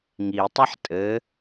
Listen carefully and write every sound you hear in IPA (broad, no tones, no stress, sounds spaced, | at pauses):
ŋ i tˤ a ħ tʼ ɘ